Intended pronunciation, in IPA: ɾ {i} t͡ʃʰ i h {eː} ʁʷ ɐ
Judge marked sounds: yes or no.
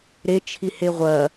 no, no

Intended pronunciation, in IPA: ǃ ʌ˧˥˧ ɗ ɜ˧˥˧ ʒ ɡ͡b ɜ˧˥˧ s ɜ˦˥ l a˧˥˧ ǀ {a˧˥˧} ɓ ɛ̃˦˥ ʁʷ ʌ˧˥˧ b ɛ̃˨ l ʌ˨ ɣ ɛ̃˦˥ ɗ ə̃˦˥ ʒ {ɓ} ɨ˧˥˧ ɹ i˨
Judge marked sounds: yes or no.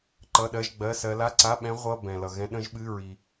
yes, yes

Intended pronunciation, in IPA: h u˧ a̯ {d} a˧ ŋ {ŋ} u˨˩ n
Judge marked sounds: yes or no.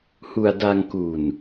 yes, no

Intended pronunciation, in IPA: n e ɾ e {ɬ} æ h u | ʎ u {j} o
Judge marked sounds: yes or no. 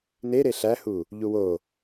yes, no

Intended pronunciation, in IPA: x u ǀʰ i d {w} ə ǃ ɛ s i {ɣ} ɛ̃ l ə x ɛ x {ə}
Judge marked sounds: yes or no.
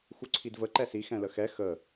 no, no, yes

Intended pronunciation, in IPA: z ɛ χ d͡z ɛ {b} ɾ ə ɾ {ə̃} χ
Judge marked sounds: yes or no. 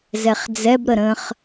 yes, yes

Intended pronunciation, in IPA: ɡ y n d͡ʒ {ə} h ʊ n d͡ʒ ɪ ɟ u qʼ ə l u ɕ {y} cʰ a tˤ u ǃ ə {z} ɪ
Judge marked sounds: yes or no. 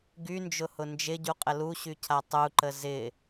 no, yes, yes

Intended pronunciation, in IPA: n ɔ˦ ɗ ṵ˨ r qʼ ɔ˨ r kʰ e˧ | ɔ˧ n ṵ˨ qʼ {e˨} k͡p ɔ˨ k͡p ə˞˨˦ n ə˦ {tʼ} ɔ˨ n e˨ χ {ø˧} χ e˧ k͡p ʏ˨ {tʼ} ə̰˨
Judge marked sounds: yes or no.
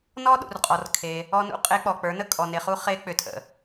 no, no, no, yes

